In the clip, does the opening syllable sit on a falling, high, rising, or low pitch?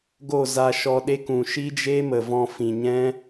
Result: falling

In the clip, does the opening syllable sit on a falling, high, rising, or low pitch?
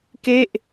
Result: falling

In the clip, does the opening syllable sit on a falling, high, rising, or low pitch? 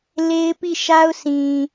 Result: high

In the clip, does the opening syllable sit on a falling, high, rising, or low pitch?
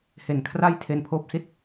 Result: low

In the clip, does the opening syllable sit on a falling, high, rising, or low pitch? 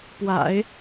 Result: low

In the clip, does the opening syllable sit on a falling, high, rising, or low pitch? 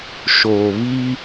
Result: low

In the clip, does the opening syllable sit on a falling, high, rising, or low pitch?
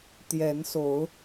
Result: rising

